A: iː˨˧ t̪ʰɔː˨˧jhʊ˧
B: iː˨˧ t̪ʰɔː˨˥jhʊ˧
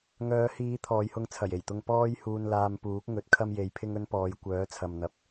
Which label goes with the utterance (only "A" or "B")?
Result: A